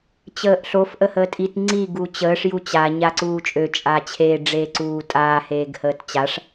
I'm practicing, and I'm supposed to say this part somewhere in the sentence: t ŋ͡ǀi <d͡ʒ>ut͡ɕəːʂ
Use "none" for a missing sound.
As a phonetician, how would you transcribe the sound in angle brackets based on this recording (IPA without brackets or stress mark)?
ɡ